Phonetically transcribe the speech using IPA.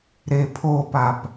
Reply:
ɾepʰopap

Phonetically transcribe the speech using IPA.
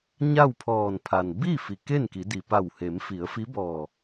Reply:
ɲa˥˨wpʰɔː˧˩npʰa˩n bi˥˨ fi˩ke˥˨nki˩˧di˩ pa˧˩whe˩˧mfi˩˧ə̯fi˧˥ bɔː˧˩

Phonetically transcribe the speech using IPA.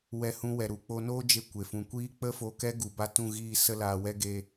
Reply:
wɛ˧hũ˧wɛ˨ɾu˨ k͡po˧noː˦d͡ʒe˧ kʷe˨fũ˨kʷiː˦ k͡pə˦fo˧ kɛ˦ɡu˨ba˧ tũ˦˨ɣiː˦˨ sə˦laː˧wɛ˦ ɡe˧

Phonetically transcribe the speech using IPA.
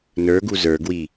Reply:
nə˞ɡu zə˞ɡwi

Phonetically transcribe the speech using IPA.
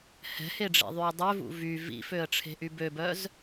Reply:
hɛ̤heɖ͡ʐḛðˤyə̯ dˤøvṵ vy vḭføə̯ʈ͡ʂʰe̤ʔy bøbœz

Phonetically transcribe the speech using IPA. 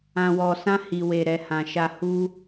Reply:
ã˨wɔ˨sã˧ hi˨we˨ ɾɛ˨hã˨ʃa˧ hu˦

